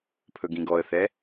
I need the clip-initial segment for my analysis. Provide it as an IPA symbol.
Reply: pʰ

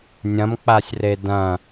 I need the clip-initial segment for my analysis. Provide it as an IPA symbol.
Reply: nʲ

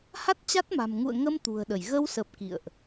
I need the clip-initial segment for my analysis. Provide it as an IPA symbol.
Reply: h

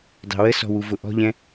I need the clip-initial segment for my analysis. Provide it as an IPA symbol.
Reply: dˤ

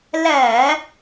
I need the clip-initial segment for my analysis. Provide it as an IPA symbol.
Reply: l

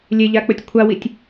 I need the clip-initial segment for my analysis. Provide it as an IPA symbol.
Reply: lʲ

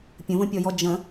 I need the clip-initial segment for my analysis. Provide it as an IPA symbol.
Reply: pʲ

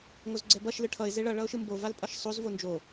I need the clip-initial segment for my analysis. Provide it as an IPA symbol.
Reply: ŋ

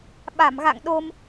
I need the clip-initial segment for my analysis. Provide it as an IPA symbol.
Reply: ɓ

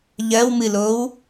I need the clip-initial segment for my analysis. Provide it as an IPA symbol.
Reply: ʎ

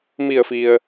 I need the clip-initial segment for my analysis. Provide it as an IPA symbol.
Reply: m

